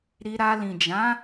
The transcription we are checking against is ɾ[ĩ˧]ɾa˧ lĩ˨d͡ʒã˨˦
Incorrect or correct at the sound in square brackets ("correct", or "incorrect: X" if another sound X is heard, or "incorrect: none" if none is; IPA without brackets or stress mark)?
incorrect: i˧